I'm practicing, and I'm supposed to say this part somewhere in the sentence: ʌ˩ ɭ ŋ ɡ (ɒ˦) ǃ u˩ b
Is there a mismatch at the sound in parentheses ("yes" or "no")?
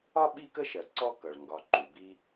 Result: yes